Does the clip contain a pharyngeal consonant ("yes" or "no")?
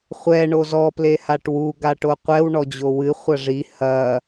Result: no